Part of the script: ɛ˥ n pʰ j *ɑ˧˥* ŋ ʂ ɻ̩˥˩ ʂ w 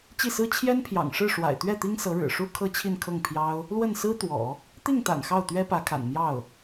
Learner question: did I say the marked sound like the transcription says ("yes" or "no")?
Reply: no